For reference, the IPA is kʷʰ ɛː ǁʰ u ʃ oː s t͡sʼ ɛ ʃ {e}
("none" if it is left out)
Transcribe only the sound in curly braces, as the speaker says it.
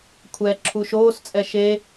e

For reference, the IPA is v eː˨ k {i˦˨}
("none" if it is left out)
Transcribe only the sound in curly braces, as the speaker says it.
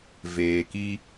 i˦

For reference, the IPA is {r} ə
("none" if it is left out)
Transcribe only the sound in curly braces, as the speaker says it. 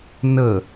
n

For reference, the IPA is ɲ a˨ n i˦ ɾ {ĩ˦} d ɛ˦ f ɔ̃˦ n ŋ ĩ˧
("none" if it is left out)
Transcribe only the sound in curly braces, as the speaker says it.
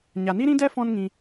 ĩ˦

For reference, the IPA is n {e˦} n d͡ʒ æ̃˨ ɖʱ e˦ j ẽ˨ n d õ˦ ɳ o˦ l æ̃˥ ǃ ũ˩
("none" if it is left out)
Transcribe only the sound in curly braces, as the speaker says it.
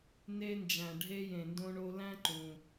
e˦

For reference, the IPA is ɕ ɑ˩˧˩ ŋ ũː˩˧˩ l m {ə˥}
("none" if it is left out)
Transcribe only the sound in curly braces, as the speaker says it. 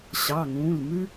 ʉ˥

